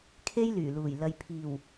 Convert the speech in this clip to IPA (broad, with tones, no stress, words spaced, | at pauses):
kʰe˥jlyː˨˩luː˨˩j lɐ˨jpʰiː˨˩w